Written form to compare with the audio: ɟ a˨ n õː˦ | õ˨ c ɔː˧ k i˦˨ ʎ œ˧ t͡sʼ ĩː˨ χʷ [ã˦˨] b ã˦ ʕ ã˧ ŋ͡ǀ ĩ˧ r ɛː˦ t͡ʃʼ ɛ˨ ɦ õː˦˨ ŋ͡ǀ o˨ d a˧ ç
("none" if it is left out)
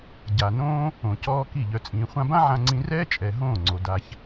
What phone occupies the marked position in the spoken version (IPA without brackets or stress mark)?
ã˧